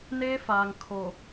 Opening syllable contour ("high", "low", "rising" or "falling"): high